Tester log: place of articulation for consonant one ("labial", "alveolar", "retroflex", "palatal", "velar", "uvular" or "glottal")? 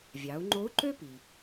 labial